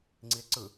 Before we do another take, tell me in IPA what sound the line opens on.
ŋ͡ǀ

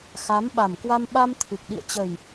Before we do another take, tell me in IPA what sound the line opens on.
x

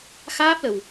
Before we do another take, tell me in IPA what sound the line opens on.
x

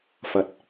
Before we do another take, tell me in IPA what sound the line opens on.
f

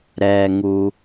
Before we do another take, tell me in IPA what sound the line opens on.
ɾ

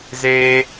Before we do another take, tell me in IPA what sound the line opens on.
z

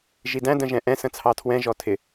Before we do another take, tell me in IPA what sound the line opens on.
ʒ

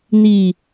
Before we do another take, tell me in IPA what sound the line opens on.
n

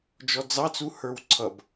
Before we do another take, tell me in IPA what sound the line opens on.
d͡ʒ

